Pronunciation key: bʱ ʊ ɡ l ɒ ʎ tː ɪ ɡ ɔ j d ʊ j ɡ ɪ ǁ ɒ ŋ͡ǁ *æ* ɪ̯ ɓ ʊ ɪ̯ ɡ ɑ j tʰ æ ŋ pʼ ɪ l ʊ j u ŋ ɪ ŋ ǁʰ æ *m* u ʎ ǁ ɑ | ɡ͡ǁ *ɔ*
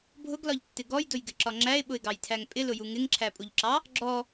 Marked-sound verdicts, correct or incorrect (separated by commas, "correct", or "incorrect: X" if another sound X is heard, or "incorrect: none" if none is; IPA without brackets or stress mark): correct, incorrect: pʼ, correct